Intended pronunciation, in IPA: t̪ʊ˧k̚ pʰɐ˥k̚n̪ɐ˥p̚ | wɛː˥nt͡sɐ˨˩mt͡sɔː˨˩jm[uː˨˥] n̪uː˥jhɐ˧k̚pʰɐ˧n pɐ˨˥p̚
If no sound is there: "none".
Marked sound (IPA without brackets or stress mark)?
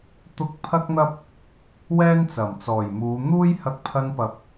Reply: uː˨˧